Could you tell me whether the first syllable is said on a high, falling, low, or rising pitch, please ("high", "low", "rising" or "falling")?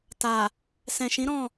low